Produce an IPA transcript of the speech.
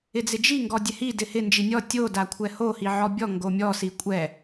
ɪ d͡z ɪ d͡ʒ i ŋ ɡ ɔ dʲ ɛ h i d ɪ h ɪ n d͡ʒ i nʲ ɔ tʲ o d a kʷʰ ɛ h o h i ʕ ɔ bʲ ɔ ŋ ɡ o mʲ ɔ s i kʷʼ ɛ

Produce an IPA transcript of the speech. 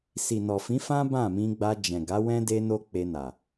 s i˨ n ɔ˨ f ĩ˨˦ f ã˦ b ã˦˨ m ĩ˧ ɡ͡b a˧ d͡ʒ ɛ̃˨ ɡ a˨˦ w ɛ̃˦ d e˦ n o˦ k͡p e˧ n a˨

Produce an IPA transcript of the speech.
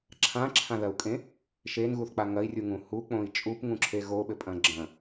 ǁʰ ã ǁʰ ã ð ɐ u̯ kʼ ẽ | ʃ e n ɣ u θ k͡p a ŋ ɐ i̯ rʲ u ŋ ũ h u k͡p õ i̯ t͡ʃʼ u p ŋ ũ ǁʰ e ɣ o ɓ ɘ pʼ ɐ̃ ɡ͡ǁ ɐ̃

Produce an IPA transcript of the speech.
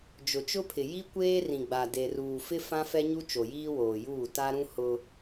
d͡ʒ ʊ˨ t͡ʃ ʊ˦ pʰ ɪ˨ j i˦ kʷ eː˦ r ĩ˨ ɡ͡b a˨ d e˨ r uː˨ f ɪ˦ f ã˦ f ɛ˦ ɲ u˦ t͡ʃ o˨ j iː˦ w oː˨ j uː˦˨ t a˦ ɾ ũ˦ h ʊ˦

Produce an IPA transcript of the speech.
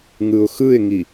ŋ ɯ ʊ̯ x ɯ ɪ̯ ŋ i

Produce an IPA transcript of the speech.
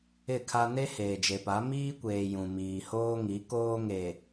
ɪ˦˨ kʰ a˦ n e˦ h eː˨ d͡ʒ e˨ p a˨˦ m iː˦ kʷ eː˨ j ũ˨ m iː˨ h oː˦ ŋ i˨˦ k oː˦ ŋ e˨

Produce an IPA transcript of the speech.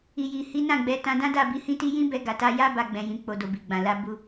i˨ j i˨ h i˨˦ n ã˦˨ ɡ͡b ɛ˨˦ t ã˧ d ã˦ d a˦˨ b i˨˦ h ĩ˦ t i˦ j ĩ˦ b ɛ˧ ɡ a˨ t a˧ j a˦ b a˧ ɡ͡b ɛ̃˨ j ĩ˨ k͡p o˨ d o˨ b i˨ ɡ͡b ã˨ l a˧ b u˧

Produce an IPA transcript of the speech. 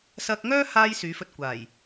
s ɐ˧ k̚ ŋ œː˥ h aː˧ j s yː˨˥ f ɵ˧ t̚ kʷ aː˨˩ j

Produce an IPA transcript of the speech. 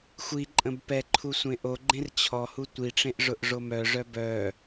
xʷ i ǃʼ ə̃ b p ɛ ǃʰ u sʷ ẽ ʔ o ɡ͡ǃ ẽ r t͡ɕʰ ɔ h u tʷ i ʈ͡ʂ ẽ ʔ ʐ ʊ ʔ ʐ o m œ ʐ œ b œ

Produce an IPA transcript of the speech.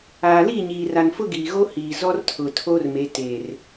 aː˨ l i˦˨ ɲ iː˨ r a˨ n f ʊ˦ ɡ iː˨ ɣ o˦ h iː˨ z ɔ˦ r tʰ ʊ˨ tʰ o˦ r m e˨˦ t e˨ r

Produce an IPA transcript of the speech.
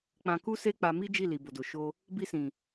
k͡p ã˧ k u˦ s e˦ k͡p a˧ m i˦ d͡ʒ i˦˨ l i˨ b o˨ d o˨ ʃ o˧ | b i˧ s ĩ˨

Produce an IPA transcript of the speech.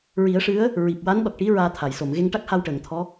ɹ i˨˩˦ ə̯ ʂ ɨ˧˥ ə̯ | ɹ i˨˩ p̚ w a˧˥ n ɗ ɔ˨˩ k̚ ʈ i˧˥ ɹ aː˧ t̪ʰ a˨˩˨ j s o˨˩˨ m ɣ e˧ ŋ ʈ a˦˥ k̚ h a˧ w ʈ əː˨˩˨ ŋ t̪ʰ ɔ˧˥

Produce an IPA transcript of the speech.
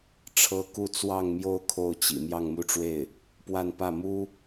ʈ͡ʂʰ ɤ˥ k u˥˧ t͡s w ɑ˥˧ ŋ m j o˥˧ ʊ̯ kʰ o˥˩ ʊ̯ t͡ɕ ḭ˨˩ m j ɑ˥˧ ŋ m u˥˧ ʈ͡ʂ w e˥˩ ɪ̯ | p w a˥˧ n p ä˥˩ m u˥

